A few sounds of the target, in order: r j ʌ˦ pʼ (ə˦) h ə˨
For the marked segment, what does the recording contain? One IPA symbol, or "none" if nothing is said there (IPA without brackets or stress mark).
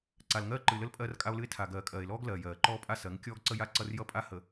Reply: a˦